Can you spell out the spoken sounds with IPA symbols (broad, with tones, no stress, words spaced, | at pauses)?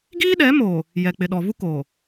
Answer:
ɡiː˦ɗɛ˨˦mo˨ | jɛ˨k͡pɪ˨ɗɔ˨vu˦ ko˨